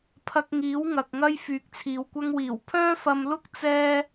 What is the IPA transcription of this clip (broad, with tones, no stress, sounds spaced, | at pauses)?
pʰ ɐ˧ k̚ ŋ iː˨˥ w ŋ ɐ˨ k̚ ŋ ɐ˥ j f yː˨ k̚ t͡sʰ iː˨ w kʷ ɐ˥ ŋ w iː˨˩ w pʰ œː˥ f ɐ˧ m l ʊ˥ k̚ t͡s ɛː˥